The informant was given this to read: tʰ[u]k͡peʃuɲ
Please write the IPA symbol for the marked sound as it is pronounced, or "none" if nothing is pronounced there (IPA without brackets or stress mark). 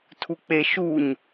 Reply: u